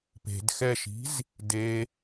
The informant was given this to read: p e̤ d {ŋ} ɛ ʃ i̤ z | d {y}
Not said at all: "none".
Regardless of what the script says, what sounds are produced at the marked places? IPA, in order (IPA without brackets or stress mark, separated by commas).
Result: x, e